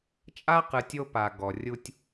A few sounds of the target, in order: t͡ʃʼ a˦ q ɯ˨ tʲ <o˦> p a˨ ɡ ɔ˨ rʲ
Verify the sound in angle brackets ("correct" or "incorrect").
correct